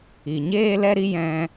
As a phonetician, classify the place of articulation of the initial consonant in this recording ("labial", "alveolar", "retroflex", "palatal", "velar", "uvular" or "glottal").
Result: palatal